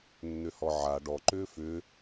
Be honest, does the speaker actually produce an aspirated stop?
no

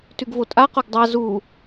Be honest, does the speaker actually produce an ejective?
yes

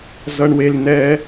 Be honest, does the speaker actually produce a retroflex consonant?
yes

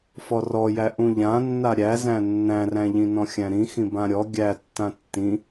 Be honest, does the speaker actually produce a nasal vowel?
yes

